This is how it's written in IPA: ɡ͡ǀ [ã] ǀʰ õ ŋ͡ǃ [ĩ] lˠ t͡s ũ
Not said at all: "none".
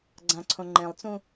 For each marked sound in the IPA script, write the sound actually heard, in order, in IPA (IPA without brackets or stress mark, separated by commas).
ã, ẽ